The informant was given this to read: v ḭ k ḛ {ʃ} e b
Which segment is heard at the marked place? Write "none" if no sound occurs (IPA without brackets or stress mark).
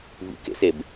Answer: s